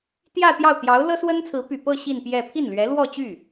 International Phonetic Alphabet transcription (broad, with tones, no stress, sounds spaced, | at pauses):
t̪ j ä˥˧ t̪ j ɑ˥˩ ʊ̯ t̪ j ɑ˧˥ ʊ̯ l ɤ˥ s w ə˥ n t͡sʰ ɹ̩˧˥ p y˨˩ p ɤ˥˧ ɕ i˥˧ n p j ɛ˥˧ pʰ i˥˩ n l ɥ ɛ˧˥ l w ɔ˥˧ t͡ɕ y˥˩